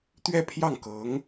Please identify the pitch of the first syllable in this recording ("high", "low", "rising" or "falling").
falling